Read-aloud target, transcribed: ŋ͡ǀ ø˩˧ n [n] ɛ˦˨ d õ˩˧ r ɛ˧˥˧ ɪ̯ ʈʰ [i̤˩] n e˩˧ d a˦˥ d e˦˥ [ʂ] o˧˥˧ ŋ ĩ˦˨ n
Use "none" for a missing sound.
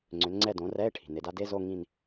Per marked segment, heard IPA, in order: ŋ͡ǀ, i̤˩, z

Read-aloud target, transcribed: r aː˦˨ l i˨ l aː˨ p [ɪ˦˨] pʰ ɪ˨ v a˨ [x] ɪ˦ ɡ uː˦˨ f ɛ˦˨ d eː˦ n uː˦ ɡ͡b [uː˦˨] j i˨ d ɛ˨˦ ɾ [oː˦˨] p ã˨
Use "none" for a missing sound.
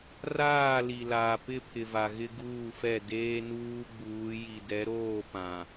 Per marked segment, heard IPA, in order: ɪ˦˨, ɣ, uː˨˦, oː˦˨

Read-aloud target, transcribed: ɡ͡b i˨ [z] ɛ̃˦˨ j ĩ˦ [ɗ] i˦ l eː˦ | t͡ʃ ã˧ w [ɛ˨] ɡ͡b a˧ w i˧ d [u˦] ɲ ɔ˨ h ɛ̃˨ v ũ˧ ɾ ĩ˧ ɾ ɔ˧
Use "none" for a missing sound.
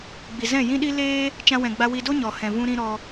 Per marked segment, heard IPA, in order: z, ɗ, ɛ̃˨, o˦

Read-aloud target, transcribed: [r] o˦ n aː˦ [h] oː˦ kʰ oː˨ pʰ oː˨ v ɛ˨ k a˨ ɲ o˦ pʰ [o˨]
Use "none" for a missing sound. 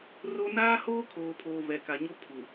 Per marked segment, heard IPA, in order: r, h, u˨

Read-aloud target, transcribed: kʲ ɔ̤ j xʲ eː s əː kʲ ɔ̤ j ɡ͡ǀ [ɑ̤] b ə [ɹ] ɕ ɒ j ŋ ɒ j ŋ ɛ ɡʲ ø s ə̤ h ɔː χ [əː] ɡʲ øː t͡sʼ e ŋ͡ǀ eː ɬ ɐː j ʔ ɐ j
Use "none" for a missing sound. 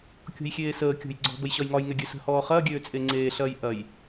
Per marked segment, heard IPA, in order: ɔ̤, j, ɐː

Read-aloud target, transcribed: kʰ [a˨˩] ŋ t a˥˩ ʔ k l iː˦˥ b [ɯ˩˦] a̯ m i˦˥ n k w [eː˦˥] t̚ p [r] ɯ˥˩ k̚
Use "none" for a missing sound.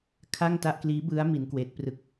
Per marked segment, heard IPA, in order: a˥˩, ɯ˦˥, eː˦˥, r

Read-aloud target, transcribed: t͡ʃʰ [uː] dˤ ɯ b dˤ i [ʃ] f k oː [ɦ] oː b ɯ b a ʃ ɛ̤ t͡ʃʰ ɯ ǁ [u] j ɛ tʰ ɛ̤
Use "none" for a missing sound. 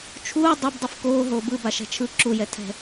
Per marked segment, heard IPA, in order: uː, none, ɦ, u

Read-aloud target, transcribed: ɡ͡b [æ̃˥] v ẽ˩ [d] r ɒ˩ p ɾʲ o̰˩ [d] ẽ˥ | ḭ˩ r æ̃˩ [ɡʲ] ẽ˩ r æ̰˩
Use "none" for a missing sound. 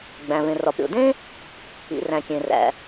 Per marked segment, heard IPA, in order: æ̃˩, none, d, kʲ

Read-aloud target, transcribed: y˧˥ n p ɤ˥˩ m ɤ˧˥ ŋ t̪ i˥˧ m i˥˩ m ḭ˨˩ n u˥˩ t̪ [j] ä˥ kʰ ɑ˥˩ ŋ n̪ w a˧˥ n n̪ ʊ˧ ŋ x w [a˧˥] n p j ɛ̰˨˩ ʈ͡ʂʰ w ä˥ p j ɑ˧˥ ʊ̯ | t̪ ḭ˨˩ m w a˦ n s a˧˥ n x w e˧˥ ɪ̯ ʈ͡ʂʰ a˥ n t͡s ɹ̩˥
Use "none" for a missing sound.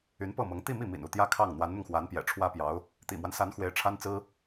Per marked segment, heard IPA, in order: j, a˧˥

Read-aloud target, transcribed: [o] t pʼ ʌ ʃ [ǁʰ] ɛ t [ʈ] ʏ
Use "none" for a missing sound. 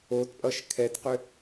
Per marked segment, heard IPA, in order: o, kʰ, q

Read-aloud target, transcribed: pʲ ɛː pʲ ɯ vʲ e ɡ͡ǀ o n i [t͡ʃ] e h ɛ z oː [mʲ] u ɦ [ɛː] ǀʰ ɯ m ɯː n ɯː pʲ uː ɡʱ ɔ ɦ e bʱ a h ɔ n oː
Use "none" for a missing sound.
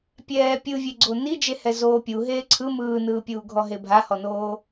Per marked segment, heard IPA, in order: d͡ʒ, pʲ, eː

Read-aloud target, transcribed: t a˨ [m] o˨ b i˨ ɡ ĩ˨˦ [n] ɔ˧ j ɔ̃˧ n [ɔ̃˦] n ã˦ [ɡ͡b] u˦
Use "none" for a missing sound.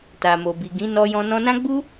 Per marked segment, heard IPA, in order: m, n, ɔ̃˧, ɡ͡b

